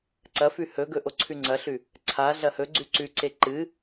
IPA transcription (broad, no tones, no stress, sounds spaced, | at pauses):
ǀ ɐ f ʉ h ɵ ɡ ɵ ʔ o ǀʰ ʉ ŋ͡ǀ ɐ ɬ ʉ | ǀʰ a ɮ ɐ h ɵ ɡ͡ǀ ʉ ǀ ʉ ǀ e ǃ ɨ